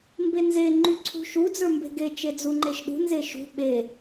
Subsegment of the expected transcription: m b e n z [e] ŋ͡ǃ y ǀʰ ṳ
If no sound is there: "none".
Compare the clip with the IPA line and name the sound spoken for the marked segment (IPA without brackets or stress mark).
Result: e